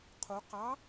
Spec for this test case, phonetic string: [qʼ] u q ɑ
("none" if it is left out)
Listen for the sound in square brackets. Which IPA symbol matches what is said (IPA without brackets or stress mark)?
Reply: qʰ